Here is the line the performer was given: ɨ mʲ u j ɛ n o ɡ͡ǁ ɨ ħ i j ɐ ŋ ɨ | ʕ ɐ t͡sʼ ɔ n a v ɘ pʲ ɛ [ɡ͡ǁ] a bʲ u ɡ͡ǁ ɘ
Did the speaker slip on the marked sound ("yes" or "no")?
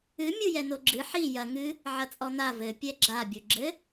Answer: no